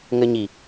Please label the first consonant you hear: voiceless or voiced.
voiced